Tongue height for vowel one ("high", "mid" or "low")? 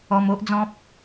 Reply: mid